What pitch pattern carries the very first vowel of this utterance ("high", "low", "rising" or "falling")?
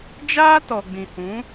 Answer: high